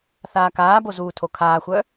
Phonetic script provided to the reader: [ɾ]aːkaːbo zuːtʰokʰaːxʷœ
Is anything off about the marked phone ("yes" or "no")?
yes